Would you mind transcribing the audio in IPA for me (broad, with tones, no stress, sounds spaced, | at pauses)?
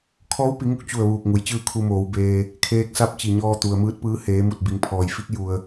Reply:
kʰ ɔː˧˥ w p i˩˧ ŋ u˧˥ k̚ t͡ɕ u˧˩ ə̯ ʋ uː˧˩ k̚ ŋ u˩˧ j t͡ɕ ɯː˥˨ kʰ u˧ m oː˩˧ w b eː˧ | kʰ eː˧ k̚ s a˧˥ p̚ t͡ɕ i˩ ɲ ɔː˧ t̪ u˩ ə̯ m ɯː˧˥ t̚ p ɯː˧˥ h eː˩˧ m u˧˩ t̚ b i˩˧ ŋ pʰ ɔː˩ j f i˧˥ k̚ j u˧ ə̯